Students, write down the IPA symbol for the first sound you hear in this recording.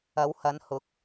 ɐ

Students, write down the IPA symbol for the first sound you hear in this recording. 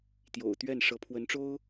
t̪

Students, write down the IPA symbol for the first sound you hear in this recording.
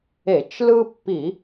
e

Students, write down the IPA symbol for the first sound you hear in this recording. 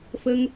f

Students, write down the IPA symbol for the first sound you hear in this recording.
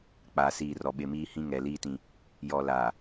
k͡p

